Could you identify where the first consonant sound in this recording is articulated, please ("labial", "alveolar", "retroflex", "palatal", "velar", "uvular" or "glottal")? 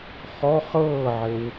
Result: uvular